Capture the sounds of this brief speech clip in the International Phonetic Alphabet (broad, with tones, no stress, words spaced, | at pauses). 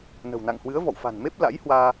nə̤˨˩wna̰˧˨ŋhwɨ˨˦ə̯ vɔ̰˧˨wfa̤˨˩nme˦˥p̚ la̰˧˥jhwaː˧